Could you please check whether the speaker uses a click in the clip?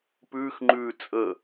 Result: yes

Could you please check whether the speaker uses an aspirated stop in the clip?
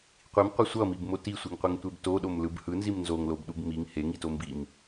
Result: no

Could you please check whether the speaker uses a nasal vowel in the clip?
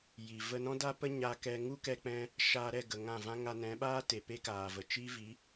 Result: yes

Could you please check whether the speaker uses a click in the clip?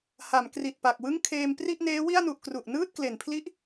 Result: no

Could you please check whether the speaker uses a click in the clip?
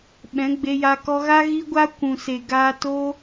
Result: no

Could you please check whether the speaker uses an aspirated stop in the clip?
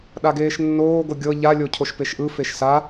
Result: yes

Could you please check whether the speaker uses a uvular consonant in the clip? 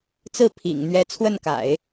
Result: no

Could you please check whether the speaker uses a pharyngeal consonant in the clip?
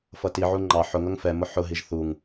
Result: yes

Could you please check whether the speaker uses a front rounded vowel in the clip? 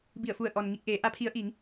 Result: no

